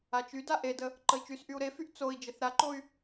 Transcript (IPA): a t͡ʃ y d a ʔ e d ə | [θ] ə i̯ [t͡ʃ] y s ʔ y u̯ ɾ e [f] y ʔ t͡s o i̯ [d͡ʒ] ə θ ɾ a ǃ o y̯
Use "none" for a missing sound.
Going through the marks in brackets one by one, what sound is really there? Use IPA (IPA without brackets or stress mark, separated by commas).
ǃ, t͡ʃ, f, d͡ʒ